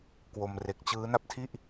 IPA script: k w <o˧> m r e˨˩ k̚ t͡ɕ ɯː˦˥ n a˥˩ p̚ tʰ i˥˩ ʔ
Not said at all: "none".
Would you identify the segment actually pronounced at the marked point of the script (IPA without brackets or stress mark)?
o˧